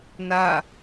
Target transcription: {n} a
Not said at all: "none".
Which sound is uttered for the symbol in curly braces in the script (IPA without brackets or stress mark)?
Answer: n